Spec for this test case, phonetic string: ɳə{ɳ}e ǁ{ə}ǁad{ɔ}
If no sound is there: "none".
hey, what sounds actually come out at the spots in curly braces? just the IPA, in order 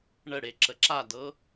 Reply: ɽ, ə, ɤ

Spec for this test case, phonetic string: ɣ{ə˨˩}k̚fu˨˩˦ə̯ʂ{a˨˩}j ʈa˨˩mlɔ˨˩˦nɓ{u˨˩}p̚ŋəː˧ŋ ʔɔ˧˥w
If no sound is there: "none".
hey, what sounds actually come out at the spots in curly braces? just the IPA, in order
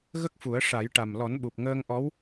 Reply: ə˦˥, a˨˩˦, u˨˩

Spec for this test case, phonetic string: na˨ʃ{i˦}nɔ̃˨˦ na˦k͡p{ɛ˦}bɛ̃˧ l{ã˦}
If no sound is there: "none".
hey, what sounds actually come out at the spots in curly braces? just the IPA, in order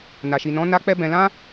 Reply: i˨, ɛ˦, ã˦

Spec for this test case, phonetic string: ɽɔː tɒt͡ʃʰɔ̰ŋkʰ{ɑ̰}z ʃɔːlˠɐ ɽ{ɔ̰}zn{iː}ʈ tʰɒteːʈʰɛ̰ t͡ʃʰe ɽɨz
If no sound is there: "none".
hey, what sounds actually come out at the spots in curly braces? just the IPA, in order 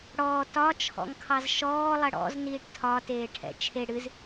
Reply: ɑ, ɔ̰, iː

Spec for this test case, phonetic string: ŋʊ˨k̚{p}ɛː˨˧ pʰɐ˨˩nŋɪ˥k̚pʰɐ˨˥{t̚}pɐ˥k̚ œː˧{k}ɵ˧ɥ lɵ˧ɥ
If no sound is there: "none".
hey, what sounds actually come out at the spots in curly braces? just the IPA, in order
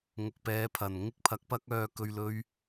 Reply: p, k̚, k

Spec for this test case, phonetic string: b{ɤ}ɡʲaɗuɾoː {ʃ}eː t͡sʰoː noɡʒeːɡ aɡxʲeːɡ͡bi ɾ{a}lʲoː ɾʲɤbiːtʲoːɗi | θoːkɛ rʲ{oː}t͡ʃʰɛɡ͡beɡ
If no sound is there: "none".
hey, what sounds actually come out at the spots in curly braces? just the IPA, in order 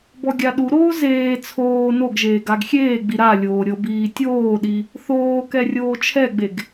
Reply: ɔ, z, a, oː

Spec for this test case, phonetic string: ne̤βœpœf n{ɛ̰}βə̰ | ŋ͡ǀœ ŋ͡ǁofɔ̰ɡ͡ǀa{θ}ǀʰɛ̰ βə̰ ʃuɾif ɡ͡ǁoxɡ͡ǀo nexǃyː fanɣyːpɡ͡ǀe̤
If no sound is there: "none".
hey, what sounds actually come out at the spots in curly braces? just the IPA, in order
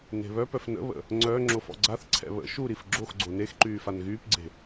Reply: ə̰, θ

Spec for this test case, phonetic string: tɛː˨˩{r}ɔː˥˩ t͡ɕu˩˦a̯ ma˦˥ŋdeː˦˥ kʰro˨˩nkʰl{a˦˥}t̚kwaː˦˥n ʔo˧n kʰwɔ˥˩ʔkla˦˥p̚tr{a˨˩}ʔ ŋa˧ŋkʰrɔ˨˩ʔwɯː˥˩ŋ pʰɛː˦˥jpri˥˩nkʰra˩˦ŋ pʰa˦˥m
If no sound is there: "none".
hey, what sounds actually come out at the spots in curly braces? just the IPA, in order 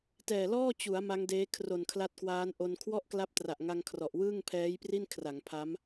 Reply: l, a˦˥, a˨˩

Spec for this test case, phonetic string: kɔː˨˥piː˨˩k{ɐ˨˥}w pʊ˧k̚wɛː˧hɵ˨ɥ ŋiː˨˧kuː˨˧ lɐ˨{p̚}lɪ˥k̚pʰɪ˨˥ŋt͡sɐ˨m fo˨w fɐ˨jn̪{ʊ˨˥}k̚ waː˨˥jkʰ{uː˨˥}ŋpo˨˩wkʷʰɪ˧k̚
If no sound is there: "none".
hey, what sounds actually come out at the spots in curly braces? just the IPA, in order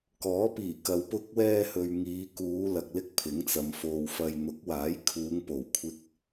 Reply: ɐ˨˧, k̚, ʊ˨˥, uː˨˧

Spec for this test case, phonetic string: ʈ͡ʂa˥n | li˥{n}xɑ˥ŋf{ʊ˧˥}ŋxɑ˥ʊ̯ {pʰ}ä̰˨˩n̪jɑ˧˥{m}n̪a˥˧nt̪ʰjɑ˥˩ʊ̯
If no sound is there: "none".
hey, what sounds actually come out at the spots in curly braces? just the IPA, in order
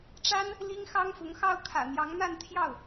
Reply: ŋ, ʊ˧˥, kʰ, ŋ

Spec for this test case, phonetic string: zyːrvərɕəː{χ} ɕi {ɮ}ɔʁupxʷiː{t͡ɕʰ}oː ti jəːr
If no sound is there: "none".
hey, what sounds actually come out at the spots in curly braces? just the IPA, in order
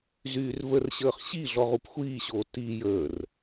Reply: χ, ɮ, ɕ

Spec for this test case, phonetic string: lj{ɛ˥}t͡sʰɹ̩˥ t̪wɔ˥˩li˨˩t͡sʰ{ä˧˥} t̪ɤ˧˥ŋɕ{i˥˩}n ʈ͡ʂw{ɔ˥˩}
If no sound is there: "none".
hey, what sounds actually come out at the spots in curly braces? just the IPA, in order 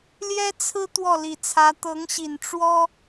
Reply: ɛ˥, ä˧˥, i˨˩, ɔ˥

